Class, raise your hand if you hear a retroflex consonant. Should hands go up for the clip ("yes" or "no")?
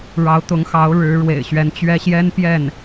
yes